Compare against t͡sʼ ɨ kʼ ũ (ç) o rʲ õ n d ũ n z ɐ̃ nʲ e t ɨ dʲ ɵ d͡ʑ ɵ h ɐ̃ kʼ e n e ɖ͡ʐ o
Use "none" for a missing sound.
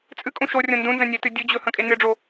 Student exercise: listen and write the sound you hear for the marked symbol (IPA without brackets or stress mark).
ʃ